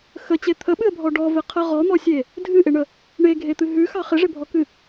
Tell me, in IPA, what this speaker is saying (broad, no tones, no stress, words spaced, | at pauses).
xət͡ɕe t̪ʰəɓɨə̯bʱɔ ɖɔvɪqʰə ʁɔn̪ɔsʲe | dʱɨʔɪɳə | ɳeɡʱet̪ɨ ɦʉxɑ χɪʐɪbʱɔkɨ